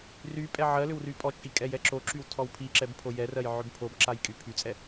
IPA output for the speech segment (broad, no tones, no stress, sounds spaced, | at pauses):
r y pʼ ɛ ʕ ɜ l ʏ w r y pʼ ɔ t͡ʃʼ i kʼ ɛ j ɛ ǁ o ǁ y w tʰ ɔ w pʰ i ǁ ɛ b pʰ o j ɛ r ɜ j ʕ ʏ b pʰ o b ǁ a j kʼ y pʰ y t͡sʼ ɛ